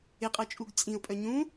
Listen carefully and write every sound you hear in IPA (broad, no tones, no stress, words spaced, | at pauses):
ɪqʼɤt͡ʃʼuɡ t͡sʼĩʊ̯pʼœ ɲũ